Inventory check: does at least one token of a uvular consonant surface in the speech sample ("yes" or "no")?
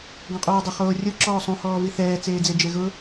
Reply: yes